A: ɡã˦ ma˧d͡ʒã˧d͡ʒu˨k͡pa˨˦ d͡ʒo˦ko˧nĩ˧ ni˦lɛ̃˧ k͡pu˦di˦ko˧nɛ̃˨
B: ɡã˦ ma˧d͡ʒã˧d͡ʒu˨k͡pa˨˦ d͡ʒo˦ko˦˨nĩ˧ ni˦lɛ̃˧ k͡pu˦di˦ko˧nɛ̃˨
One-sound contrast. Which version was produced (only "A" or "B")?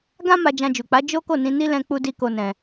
B